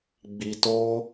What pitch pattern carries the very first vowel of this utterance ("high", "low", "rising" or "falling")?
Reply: low